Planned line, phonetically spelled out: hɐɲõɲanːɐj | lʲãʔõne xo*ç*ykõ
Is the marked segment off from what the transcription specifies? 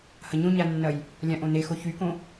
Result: no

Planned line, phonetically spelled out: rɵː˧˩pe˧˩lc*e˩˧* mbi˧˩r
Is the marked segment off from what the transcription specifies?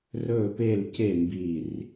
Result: yes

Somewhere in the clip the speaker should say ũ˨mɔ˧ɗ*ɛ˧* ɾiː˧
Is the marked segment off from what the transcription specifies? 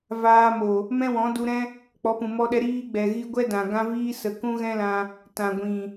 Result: no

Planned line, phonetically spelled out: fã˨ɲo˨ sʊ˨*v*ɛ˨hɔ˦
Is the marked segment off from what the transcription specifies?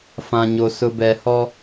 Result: yes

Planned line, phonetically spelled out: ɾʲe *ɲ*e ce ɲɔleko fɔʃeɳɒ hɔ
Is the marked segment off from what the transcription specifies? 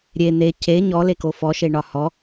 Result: yes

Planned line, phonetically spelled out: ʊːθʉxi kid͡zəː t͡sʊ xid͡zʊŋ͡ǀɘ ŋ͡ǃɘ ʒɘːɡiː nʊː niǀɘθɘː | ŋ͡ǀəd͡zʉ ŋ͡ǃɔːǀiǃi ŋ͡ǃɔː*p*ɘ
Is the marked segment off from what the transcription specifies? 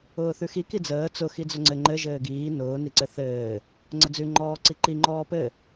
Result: no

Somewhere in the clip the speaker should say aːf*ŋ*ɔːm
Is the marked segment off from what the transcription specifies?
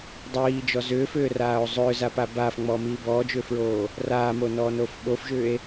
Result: yes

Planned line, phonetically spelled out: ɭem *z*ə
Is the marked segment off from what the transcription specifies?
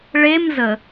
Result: no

